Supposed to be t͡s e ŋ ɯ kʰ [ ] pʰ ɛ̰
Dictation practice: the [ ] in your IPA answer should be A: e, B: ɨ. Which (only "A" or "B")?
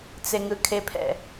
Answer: A